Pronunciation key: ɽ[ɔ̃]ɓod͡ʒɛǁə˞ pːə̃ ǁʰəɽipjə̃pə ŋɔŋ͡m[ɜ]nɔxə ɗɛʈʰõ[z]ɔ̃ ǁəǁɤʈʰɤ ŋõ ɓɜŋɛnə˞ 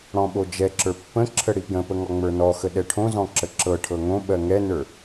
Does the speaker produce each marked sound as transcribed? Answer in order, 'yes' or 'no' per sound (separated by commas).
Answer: yes, no, yes